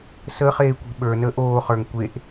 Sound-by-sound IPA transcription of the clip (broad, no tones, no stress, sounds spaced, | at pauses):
s ə χ eː kʷ i̤ ɓ ə˞ n əː ʔ oː χ ə˞ ŋ kʷ e ʔ